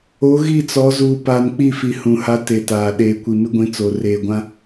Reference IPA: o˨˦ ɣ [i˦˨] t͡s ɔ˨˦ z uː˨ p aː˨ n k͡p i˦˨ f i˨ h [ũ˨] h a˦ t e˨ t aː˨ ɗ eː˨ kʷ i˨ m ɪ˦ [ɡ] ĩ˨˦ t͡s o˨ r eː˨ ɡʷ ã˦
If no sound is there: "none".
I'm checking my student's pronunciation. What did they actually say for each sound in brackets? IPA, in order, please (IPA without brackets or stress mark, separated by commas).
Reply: i˦˨, ũ˨, ɡʷ